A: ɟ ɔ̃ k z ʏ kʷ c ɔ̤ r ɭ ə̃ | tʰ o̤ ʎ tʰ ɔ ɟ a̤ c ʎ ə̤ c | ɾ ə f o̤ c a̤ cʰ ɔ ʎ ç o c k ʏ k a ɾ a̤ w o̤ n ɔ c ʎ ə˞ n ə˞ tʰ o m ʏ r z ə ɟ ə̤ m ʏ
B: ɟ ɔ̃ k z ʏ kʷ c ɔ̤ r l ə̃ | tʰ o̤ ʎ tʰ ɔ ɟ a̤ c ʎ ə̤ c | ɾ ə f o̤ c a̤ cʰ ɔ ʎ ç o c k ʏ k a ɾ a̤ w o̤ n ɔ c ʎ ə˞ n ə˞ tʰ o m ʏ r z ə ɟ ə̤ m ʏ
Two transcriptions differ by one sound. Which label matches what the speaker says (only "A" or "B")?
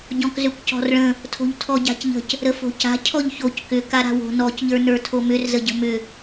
A